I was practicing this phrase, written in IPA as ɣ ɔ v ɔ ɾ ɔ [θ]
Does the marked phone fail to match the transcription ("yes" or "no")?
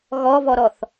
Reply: no